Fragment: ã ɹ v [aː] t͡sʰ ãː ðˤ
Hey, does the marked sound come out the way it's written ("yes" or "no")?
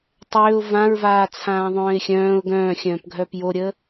yes